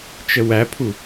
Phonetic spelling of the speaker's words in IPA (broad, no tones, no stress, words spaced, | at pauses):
t͡ʃəwæpʰu